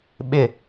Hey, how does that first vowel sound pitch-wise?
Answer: falling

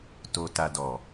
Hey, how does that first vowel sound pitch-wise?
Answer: low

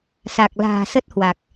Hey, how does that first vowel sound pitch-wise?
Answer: low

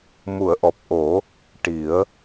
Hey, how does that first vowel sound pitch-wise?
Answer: low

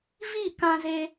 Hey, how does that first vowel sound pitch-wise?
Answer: falling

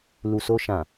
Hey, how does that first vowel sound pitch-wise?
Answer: low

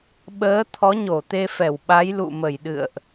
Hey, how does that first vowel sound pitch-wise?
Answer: rising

